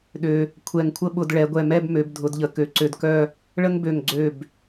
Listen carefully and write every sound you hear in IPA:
ɗø˧ | kʷʰɛ˧˩ŋkʷʰə˥˧ɓʊ˧d ɭɛ˩˧ɡʷɛ˧˩mɛ˥˧b mø˩˧b dʱʊ˩˧dʎə˩˧ kø˩˧ǀø˧dkœ˥˧ | ɭə˥ŋbø˧˩ŋ ɡ͡ǀø˧˩b

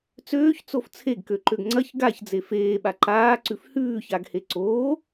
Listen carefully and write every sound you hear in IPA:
t͡søːçt͡sof t͡sʰeɡkøǃøɡ ŋ͡ǀɐç ɡaçd͡ze feːɓa ǃaːǀʉf hʉːçaɡhe ǀoː

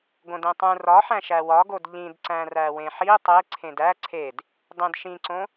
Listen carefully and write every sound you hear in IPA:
ɡõdẽtˤũ rɒħæ̃ ʃæwɒɡod ʎĩdǀæ̃ræ wẽħi tˤe ǀʰẽdæ ǀʰed | dˤẽdʃĩǀõ

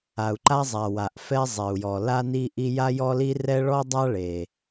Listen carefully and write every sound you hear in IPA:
a˩u̯ǃa˥zˤa˩ wa˩ʔfɛ˥zˤɛ˩u̯jɔ˩ la˥ni˥ʔi˥ ja˥jɔ˥li˥ rɛ˥ ɭɔ˥dˤa˥ɭe˩

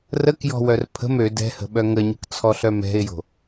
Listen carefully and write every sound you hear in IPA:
rəkjɔ̤ wœrpʰə̤m ø dɛ̤hə̤ɓœ ŋəɲə̤kt͡sʰɔɬœ mɛ̤ɪ̯jo̤

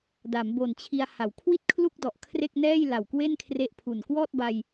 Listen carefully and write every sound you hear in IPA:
da˩˦mbo˨˩nt͡ɕʰi˧a̯ ha˩˦wkʰwi˥˩t̚kʰlu˥˩k̚dɔ˨˩ʔ kʰre˥˩k̚nɛː˥˩jla˨˩w kwe˥˩nkʰre˦˥ʔpʰu˨˩n kwɔː˥˩t̚ba˧j

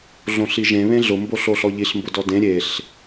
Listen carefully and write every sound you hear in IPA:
ɮõɬiʒẽ βẽɮʊ mboɬoɬɔʎiɬ mbʊdɔdẽ ɾʲeɬ

